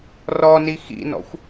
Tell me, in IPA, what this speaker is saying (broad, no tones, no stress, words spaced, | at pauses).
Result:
rɔni xḭnɔ̰xʷ